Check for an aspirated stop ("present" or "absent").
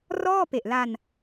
absent